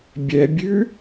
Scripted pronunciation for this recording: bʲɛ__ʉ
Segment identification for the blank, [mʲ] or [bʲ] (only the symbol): bʲ